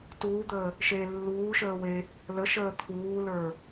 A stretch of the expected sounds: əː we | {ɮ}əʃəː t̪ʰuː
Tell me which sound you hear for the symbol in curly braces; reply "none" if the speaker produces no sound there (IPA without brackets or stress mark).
l